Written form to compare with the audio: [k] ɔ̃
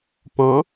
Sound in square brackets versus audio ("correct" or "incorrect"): incorrect